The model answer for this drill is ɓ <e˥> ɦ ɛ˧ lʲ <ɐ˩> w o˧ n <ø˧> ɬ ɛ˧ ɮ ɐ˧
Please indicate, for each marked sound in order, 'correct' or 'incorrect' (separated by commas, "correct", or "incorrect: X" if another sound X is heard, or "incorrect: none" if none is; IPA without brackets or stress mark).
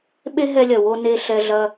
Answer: correct, correct, incorrect: e˧